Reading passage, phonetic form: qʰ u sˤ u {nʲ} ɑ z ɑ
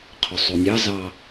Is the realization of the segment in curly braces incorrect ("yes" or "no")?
no